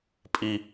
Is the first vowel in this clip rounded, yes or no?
no